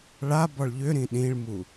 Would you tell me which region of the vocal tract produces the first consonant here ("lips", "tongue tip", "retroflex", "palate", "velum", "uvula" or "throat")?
retroflex